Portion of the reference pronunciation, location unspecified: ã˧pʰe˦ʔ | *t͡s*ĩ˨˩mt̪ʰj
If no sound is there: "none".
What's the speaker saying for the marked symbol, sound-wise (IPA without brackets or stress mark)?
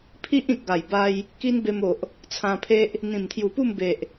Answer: n̪